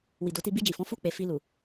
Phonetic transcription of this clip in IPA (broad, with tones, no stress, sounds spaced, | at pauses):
w i˨ d o˨˦ t i˧ b i˧ d͡ʒ i˨ f ɔ̃˨˦ f u˦˨ k͡p e˨ f i˧ l u˨